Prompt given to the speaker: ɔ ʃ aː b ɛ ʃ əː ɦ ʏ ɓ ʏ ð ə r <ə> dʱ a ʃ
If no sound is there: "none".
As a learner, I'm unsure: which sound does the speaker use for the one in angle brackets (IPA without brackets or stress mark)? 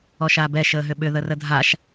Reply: ə